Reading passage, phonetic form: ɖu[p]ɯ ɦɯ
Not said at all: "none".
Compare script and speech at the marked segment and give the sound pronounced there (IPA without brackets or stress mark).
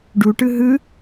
ʈ